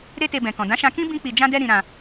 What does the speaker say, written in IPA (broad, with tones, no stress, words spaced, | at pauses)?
ɾe˦te˧bɛ̃˨kɔ̃˨ dã˨˦ʃã˧kĩ˦ bĩ˧k͡pi˨d͡ʒã˧dɛ˧ ɾĩ˧ɾã˧